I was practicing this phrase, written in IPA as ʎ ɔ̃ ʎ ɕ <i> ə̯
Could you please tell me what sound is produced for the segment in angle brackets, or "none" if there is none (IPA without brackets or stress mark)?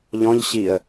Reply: i